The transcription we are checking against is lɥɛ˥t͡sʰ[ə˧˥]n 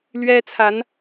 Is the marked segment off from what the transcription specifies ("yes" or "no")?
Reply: yes